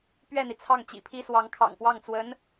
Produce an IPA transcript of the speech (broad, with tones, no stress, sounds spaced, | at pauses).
p ɥ ɛ˥˩ n̪ i˩ t͡sʰ ɑ˥˩ ŋ t͡ɕ ḭ˨˩ pʰ i˥ s w ɑ˧˥ ŋ kʰ ɑ̰˨˩ ŋ p w ɑ˥˩ ŋ t͡s w ə˧˥ n